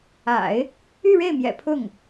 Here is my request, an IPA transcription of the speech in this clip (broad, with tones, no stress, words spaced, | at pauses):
a̰˨˩˦ɪ̯ | y˥˧ɻe˥˩ɪ̯mjɛ̰˨˩ pʰʊ˥˩ŋ